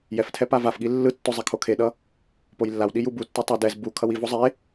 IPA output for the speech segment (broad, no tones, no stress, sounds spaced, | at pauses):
j ɛ f tʰ ɛ p a v a f ɠ i lː ɯ tː o zˤ ɛ kʰ o kʰ e ɗ ʌ | p o j lː a w ɗ i j u b u tː o tˤ ɛ d ɛ z b u kʰ ʌ w i v o zˤ e